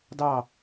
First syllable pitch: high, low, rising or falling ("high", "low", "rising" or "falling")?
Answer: falling